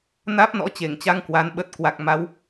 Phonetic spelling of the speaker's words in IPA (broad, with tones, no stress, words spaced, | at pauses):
naː˦˥p̚nɔ̰˧˥t͡ɕe˧˩ŋt͡ɕa˧ŋ kwa˨˦n ɓə˨˩t̚kwa˨˩k̚ma˨˦w